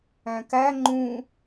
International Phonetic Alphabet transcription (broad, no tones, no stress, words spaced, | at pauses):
æ̃kæ ŋ͡ǃũ